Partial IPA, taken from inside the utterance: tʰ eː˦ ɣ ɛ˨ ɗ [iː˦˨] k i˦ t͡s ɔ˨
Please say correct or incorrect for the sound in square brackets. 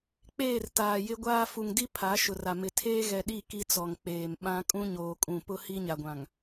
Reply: incorrect